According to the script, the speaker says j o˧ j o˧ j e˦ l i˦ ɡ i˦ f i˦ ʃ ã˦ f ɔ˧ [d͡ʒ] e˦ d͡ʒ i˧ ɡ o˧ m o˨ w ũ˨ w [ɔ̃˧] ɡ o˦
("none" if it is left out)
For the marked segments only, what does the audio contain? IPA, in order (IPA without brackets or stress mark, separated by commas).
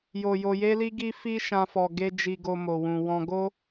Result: ɡ, ɔ̃˧